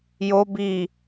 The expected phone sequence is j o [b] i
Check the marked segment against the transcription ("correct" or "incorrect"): correct